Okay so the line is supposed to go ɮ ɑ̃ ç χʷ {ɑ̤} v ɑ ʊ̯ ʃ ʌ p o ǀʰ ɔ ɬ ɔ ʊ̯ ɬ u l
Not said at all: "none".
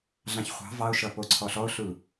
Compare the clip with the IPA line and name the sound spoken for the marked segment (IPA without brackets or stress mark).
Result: ɑ̤